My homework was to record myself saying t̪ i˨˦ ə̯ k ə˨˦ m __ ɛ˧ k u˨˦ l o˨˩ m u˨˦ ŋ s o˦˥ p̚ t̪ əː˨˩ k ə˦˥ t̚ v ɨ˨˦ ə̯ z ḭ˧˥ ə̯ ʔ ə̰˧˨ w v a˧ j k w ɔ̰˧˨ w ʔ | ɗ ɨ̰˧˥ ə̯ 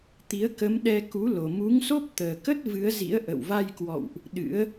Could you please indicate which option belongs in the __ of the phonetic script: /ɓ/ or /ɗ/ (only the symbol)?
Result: ɗ